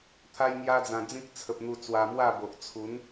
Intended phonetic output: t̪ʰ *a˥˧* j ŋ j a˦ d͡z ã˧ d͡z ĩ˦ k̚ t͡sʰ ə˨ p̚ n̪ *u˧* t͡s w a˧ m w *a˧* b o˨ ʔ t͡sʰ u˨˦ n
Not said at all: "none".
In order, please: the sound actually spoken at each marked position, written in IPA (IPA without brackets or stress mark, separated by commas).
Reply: a˦, u˧, a˥˧